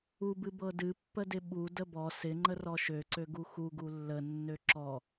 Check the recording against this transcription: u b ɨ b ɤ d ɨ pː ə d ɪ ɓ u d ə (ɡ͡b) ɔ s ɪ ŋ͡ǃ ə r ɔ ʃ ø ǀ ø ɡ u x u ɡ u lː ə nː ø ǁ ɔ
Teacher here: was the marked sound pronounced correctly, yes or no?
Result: no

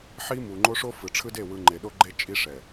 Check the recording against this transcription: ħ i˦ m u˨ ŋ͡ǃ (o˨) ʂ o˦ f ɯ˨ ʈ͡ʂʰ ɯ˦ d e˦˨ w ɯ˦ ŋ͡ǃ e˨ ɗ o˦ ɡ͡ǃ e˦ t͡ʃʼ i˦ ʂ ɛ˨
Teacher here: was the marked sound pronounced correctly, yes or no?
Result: no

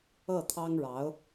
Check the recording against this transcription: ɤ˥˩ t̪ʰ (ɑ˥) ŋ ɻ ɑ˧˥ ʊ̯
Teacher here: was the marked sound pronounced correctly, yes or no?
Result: yes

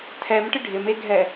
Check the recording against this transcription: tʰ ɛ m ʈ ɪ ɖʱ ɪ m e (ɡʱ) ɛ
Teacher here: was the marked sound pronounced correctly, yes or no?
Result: yes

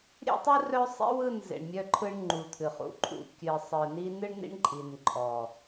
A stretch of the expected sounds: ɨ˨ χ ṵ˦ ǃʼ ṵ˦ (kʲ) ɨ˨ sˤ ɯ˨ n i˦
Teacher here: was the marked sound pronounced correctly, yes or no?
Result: yes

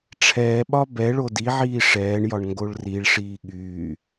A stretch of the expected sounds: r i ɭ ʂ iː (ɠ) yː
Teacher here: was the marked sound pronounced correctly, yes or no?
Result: yes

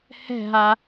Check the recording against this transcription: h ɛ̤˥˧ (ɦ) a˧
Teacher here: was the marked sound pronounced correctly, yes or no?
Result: yes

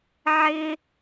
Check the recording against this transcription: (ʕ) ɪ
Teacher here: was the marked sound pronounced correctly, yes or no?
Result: yes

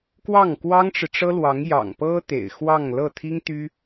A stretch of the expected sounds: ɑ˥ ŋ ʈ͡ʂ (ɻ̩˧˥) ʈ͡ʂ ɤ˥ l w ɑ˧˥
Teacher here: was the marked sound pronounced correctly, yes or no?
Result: no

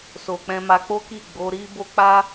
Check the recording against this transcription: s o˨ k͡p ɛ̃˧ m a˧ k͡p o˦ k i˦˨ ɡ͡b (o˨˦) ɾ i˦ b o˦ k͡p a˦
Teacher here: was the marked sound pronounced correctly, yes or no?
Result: yes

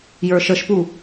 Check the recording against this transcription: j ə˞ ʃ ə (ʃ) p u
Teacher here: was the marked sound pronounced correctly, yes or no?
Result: yes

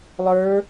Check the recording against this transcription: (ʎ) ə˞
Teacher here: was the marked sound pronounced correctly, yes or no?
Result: no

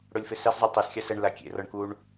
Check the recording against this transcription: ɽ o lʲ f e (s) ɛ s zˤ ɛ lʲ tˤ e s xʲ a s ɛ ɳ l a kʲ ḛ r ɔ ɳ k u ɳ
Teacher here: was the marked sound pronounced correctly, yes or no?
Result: yes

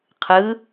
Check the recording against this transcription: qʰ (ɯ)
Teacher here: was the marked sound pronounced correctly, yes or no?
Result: yes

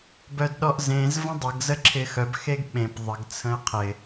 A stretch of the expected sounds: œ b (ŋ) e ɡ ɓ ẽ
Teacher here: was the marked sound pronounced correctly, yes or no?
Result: no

